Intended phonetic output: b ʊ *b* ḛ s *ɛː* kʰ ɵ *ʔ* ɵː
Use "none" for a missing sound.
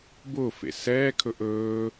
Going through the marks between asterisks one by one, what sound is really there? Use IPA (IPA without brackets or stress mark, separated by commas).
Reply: f, ɛː, ʔ